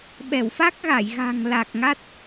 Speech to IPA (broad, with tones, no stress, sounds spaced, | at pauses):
ɓ ɛ˧˩ w f a˦˥ k̚ ɣ a˧˩ j ɣ a̤˨˩ ŋ l a˨˩ k̚ ŋ a˦˥ t̚